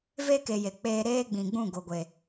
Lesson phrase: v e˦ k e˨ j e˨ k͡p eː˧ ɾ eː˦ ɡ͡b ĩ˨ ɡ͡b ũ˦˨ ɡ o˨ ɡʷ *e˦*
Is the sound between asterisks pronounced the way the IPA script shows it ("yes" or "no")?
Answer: no